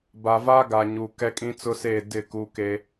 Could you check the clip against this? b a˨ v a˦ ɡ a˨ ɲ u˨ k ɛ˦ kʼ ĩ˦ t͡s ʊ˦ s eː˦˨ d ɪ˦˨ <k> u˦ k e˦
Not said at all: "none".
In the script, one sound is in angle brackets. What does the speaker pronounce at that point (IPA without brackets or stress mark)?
k